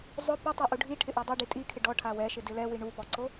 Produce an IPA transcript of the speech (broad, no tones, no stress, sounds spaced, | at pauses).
zˤ ʊ p ʊ tˤ e ʔ u ɖʱ i ʈʰ ɪ ʔ e dˤ o ɖ i tʼ i kʰ ɪ ɖ ɔ ʈʰ a w ɛ ʃ ɪ d ɪ l ɛ w i ɳ u p ɔ ǀ o